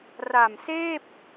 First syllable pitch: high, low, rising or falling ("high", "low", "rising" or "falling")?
low